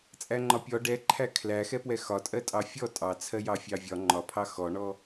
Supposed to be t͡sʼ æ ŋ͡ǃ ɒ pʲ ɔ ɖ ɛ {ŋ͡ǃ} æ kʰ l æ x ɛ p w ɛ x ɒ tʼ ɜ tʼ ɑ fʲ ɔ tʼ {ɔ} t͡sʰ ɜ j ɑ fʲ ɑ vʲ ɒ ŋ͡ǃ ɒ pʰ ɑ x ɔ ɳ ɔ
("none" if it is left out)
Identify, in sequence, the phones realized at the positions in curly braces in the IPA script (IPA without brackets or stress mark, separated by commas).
ǃʰ, ɑ